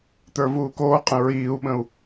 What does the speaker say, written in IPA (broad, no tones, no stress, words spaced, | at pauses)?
t̪ə˞vuːkoːqʼə̃ ɹiːu̯ɓə̃u̯